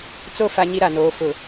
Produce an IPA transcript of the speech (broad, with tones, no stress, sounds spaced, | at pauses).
t͡s o˦˨ f a˦ ɲ i˦ ɾ a˨ n oː˨˦ f ʊ˨